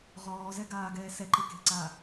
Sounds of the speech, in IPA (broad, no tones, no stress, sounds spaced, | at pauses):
ʁ ɔː z ɛ ɡ aː ɡ ɛː s ɛ ǃ ɪ k e̤ ǀ aː